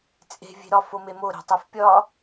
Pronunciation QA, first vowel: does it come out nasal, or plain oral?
oral